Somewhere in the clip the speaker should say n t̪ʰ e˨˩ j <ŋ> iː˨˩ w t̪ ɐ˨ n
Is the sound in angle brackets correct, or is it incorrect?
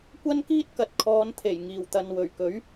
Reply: correct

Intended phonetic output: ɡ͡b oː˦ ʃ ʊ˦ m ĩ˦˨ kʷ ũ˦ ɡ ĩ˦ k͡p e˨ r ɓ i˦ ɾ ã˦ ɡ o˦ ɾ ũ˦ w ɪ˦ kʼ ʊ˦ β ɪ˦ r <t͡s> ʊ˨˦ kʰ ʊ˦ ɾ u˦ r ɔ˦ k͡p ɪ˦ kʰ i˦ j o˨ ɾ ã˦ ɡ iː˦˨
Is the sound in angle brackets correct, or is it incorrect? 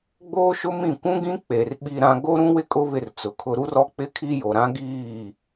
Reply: correct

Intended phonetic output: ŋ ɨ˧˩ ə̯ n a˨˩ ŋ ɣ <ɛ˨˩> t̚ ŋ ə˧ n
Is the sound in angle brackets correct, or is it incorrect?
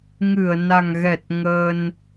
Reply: correct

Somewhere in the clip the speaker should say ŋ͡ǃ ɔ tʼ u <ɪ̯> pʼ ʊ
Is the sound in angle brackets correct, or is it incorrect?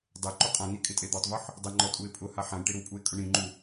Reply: correct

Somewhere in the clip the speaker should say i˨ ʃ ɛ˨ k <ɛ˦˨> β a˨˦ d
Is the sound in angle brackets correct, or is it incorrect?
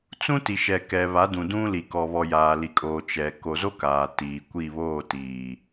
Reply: incorrect: ɛ˨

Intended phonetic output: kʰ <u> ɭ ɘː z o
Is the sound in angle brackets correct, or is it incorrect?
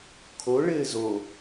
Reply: incorrect: o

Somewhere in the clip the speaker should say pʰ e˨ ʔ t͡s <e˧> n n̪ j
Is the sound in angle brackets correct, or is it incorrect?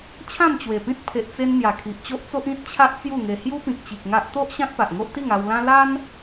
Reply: correct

